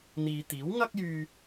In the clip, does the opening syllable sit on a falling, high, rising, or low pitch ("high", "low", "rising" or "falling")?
low